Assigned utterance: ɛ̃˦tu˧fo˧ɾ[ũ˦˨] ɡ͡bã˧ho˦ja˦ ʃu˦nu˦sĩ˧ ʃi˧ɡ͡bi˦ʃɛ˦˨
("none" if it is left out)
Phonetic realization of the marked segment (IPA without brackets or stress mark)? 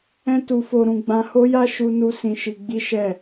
ũ˧